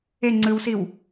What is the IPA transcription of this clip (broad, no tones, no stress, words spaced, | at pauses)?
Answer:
e ŋ͡ǀɯwsiw